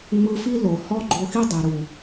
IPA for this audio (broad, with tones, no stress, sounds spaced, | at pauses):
ŋ͡m ɯ˧ f i˦ l o˨ h ɔ˦ ɡ͡ǃ o˧ x i˦ dˤ ɛ˨ ɾ u˨